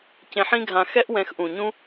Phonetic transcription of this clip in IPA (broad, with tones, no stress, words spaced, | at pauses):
cẽ˧ħĩ˦ɡʱã˧ xɛ˦ʔwɛ̃˧xʔũ˨ɲũ˦